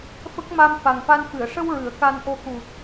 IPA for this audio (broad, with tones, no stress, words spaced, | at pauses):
fə˦˥k̚ ma˧mfa˨˩ŋfa˧nfɨ˨˩˨ə̯ ʂə˧w ɹɨ˨˩˦ə̯ka˧nʔo˧ ku˨˩t̚